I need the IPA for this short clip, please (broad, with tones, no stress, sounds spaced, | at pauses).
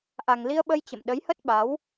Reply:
ʔ a˨˩ ŋ l i˧ ə̯ ɓ ə˧ j t͡ɕ ə̰˧˨ m ɗ ə˨˦ j h ə˦˥ t̚ ɓ a˨˦ w